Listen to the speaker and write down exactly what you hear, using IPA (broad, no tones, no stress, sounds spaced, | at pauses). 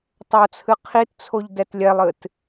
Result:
tˤ o t͡sʰ ɨ qʰ i t t͡sʰ o ʎ d ɛ t lʲ ɛ lˠ ɨ t